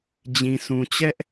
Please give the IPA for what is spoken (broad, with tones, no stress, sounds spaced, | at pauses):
d͡ʑ ĩ˨ sʰ ũ˨ t͡ɕ ɛ˦ ʔ